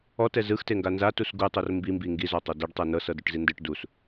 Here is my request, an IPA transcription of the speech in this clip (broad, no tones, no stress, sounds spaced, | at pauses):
ɔ t ɛ z ɯ x t e ŋ ɡ a n z a t u s ɡ u tˤ o r m b i m b i ŋ ɡ i z ɔ tˤ o d ɛ ɖ tˤ ɤ n ɤ s ɤ d u ʈ z i n d ɯ ʈ d u s